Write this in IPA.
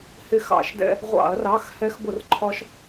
h ɪ˧˩ x ɑ̰˧˩˧ ʃ d ɛ̰˧ | ʁʷ ɑ̰˧˩˧ ɐ̯ r ɑ˩˧˩ x h ɛ˧ x b ʊ˧˩˧ r ǃʰ ɒ˧ ʃ

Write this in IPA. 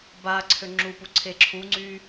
b a ǀʰ ø ŋ͡ǁ u p u ǀʰ e ǁʰ u ŋ͡ǀ y

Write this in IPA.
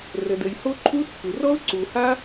r ə˩ d ə˩ j h o˥ ǃʰ u˥ t͡sʰ ɯ˩ r ɔ˥ ʊ̯ ǀ u˩ h a˥

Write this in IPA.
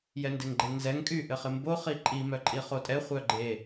j ɛ n d e ŋ ɡ͡ǃ e ŋ z ɛ ŋ kʼ y ʔ ɘ χ ɪ m b o χ i ǃʼ i m œ ǃʼ i χ o tʼ ɛ χʷ œ ɡ͡ǃ e

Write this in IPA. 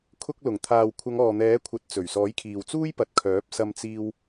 kʰ ʊ˧ k̚ l ʊ˨˩ ŋ t̪ʰ aː˨ w kʷʰ ɐ˨˧ ŋ ɔː˨ n̪ ɛː˨˥ kʷʰ ɐ˨˥ t̚ t͡s ɵ˨˩ ɥ s ɔː˨˥ j kʰ iː˨ w t͡s uː˥ j p ɐ˨ t̚ kʰ œː˨˥ p̚ s ɐ˧ m t͡s iː˧ w

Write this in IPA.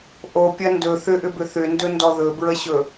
ʔ o pʲ ɐ n d ɵ θ ʏ ʔ ʏ b ʏ θ ʏ n d ɵ n d ɔ ð ɵ b ɹ ə ɕ ɵ

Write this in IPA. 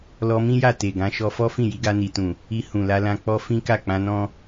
l ɔ˧ m ĩ˦ j a˦˨ t e˨ ɡ ã˨˦ ʃ ɔ˧ f ɔ˦ f ĩ˦˨ j i˨˦ ɡ a˧ n i˨ t ũ˨ | i˧ h ũ˨ l a˧ l ã˧ k͡p ɔ˦ f ĩ˦ k a˦˨ k͡p ã˧ n ɔ̃˦

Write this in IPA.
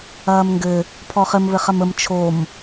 ɐː m ŋ ɡ ɘ | pʰ ɔ χ ɘ m β ɘ χ ɐ m ə m t͡ʃʰ o m

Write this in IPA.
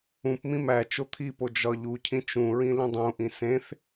ũ p m ĩ m æ t͡ʃ o t̪ʰ i p o d͡ʒ ɒ ʎ u cʰ ĩ t͡ʃ ũ ɹ ĩ l ĩ dˤ ũ ʔ ĩ s ẽ θ

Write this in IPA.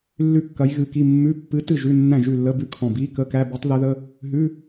lː ʉ˥˨ kː ɐ˧˥ j ɣ ɨ˧˥ k i˧˥˧ mː ʉ˧˥˧ pː ɨ˧˥ t ɨ˥˨ ʒ ʉ˧˥˧ nː æ̃˥˨ ʒ ʉ˥˨ lː ə˧˥˧ b ʉ˥˨ kʰ ɔ̃˧˩ b i˧˥˧ k ə˧˥˧ k æ˧˥˧ b i˧˥ tˤ ð ɛ˧˥ ð ə˧˥˧ | ɦ ʉ˧˥˧

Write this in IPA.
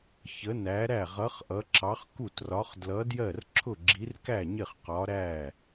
ç ə˧˥ n æ˧˥ ɾ æ˥˨ ʁ ʌ˧˥ χ ʔ ʌ˧˥ ǁ ɑ˧˥ χ k u˥˨ t r ɒ˧˥ χ d l ʌ˧˥ d j ɜ˥˨ r ǁʰ ʊ˥˨ ɡ͡ǁ i˧˥ r k æ˥˨ ɲ ɪ˥˨ χ q ɒ˧˥ ɾ æ˥˨

